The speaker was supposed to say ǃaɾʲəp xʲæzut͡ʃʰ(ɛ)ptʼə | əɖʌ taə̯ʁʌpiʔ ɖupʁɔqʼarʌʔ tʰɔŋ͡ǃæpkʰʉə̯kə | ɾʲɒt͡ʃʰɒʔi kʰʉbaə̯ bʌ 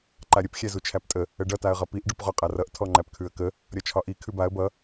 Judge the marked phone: incorrect: æ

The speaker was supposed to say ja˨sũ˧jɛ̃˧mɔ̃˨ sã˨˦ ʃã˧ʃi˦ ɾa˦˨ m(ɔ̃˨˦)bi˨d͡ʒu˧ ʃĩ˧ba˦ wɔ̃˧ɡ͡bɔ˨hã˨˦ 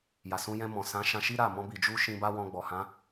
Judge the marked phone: incorrect: ɔ̃˧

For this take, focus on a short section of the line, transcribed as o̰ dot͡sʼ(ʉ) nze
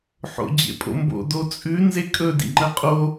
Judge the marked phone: correct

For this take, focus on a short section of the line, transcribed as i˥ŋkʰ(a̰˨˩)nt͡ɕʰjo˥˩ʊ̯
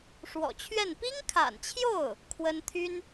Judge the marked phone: correct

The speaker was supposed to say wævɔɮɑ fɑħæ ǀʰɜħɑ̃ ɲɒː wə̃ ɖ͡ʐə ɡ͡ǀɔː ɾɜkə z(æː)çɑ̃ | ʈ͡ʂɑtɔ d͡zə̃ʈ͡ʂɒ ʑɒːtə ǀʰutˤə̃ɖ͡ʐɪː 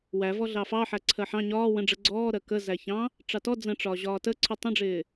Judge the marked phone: incorrect: æ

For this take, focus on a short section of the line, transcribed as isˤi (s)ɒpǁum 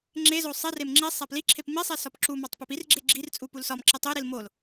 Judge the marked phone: correct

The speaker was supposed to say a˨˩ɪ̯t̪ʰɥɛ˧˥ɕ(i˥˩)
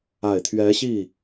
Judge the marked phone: correct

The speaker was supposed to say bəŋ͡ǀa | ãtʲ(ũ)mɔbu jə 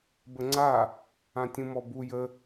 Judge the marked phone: correct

